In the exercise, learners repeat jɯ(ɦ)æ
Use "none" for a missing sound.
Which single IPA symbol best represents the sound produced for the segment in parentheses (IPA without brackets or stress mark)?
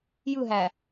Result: ɦ